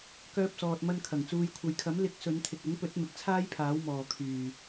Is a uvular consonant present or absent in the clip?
absent